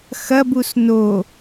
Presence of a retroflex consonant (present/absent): absent